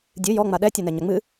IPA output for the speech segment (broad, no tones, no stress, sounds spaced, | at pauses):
dʲ ɨ j ɔ ŋ͡m a ɗ ɛ tʲ u n ɛ ɲ ɐ ŋ͡m ɨ